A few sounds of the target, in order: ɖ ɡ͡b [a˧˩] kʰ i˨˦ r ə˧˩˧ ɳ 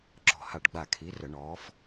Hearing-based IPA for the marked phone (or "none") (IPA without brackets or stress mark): a˧˩